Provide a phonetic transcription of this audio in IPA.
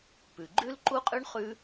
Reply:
p ʉ˩ ɡ͡ǃ ʉ˥ l ǃ u˥ qʼ ʉ˥ ɳ χ ʉ˥

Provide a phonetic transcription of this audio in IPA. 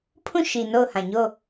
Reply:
pʰ ũ˦˨ ʃ i˨ n o˦˨ ʊ̯ h ã˨ ɲ o˦˨

